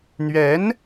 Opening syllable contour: rising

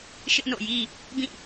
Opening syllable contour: high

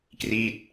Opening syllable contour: falling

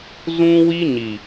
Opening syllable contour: high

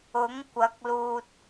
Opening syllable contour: rising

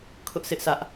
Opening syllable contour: high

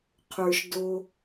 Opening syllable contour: low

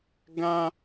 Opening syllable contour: high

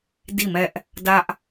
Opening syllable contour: falling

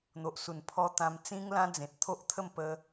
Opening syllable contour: low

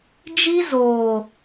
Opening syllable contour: high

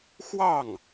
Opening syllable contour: falling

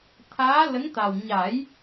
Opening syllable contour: rising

